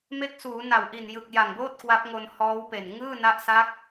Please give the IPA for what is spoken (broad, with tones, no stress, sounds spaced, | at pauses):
m e˦˥ k̚ s uː˩˦ n a˨˩ w ʔ i˨˩ n j ɯ˨˩ k̚ j a˨˩ ŋ b oː˥˩ t̚ k w a˦˥ p̚ ŋ o˧ n h ɔː˦˥ w p e˨˩ n ŋ ɯː˥˩ n a˦˥ ʔ s a˦˥ k̚